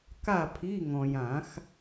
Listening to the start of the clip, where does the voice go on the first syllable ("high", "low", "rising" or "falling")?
falling